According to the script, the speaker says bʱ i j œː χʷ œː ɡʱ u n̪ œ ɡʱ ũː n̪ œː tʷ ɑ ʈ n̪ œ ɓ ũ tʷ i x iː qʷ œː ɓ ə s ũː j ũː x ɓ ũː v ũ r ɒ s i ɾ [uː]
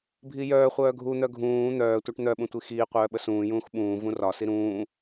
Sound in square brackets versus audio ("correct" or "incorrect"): incorrect